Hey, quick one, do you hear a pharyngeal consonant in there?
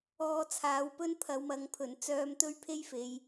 no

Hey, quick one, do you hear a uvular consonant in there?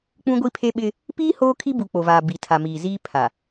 no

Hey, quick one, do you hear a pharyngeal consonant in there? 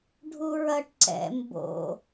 no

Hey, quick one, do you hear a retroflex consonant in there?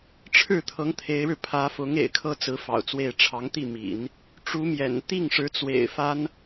yes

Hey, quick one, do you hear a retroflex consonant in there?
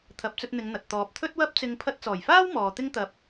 no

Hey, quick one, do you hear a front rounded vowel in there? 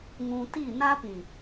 no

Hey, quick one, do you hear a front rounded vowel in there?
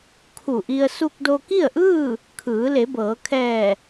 no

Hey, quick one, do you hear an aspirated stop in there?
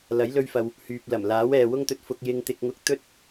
no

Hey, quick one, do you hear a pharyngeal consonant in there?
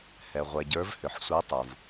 yes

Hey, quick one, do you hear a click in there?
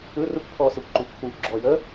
yes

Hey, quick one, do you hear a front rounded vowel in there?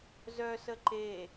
yes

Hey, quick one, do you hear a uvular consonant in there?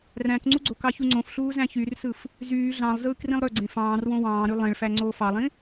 no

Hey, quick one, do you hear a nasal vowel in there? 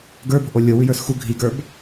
no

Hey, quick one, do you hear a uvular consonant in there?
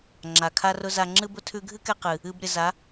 yes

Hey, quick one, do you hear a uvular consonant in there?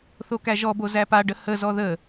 no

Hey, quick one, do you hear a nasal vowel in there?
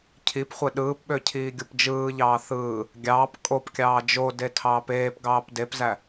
no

